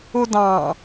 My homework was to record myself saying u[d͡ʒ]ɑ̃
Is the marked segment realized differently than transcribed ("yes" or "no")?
yes